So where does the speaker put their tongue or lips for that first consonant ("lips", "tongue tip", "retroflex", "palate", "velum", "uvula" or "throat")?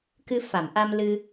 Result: velum